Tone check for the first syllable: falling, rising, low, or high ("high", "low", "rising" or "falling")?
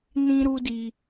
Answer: high